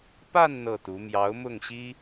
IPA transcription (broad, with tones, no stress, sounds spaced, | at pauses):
p a˥˧ n n̪ ɤ˥˩ t̪ u˧˥ m j ɑ˧˥ ʊ̯ m ʊ˥˩ ŋ ɕ i˥